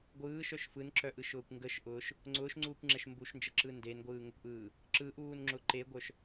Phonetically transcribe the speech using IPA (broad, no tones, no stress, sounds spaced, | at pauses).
ɡʷ ɯː ʃ œ ʃ f ɯ n ǁ œ ʔ ɯ ʃ ʊː kʷ ŋ ɡ ə ʃ ʔ ʊː ʃ | ŋ͡ǀ ʊː ʃ ŋ͡ǀ uː kʷ ŋ͡ǁ ɛ ʃ m b u ʃ n d͡ʒ ə ǁ ɯ n d e n ɡʷ ɯː ŋ ʊ kʷ ʔ ɯː | ǁ ɯ ʔ uː n ŋ͡ǁ ʊ ǃ e ɡʷ œ ʃ